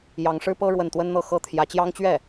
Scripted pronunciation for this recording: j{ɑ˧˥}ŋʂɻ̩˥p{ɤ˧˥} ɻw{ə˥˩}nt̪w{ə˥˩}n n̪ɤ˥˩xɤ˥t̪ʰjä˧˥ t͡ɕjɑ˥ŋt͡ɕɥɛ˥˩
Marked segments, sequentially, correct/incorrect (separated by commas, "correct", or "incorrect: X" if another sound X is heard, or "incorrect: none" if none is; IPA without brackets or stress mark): correct, incorrect: ɤ˥, correct, incorrect: ə˥